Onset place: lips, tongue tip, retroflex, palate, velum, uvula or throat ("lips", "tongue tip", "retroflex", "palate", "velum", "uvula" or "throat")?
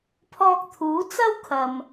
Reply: lips